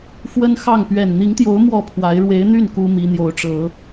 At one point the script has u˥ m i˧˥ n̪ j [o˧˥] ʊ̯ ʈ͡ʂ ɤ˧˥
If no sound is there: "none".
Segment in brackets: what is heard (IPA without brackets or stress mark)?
o˧˥